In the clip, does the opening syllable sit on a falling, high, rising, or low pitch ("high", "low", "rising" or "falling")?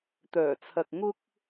low